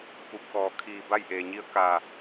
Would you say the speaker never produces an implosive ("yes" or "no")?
yes